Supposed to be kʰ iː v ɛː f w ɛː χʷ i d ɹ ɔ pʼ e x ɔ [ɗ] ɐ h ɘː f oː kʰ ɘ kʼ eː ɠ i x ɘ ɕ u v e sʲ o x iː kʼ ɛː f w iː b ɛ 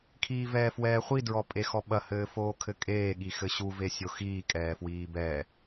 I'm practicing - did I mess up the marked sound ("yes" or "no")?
yes